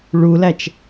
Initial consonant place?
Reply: retroflex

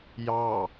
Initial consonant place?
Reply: palatal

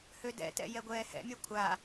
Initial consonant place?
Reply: glottal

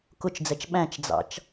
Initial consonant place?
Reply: velar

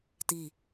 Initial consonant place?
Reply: alveolar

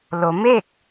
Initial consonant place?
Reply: alveolar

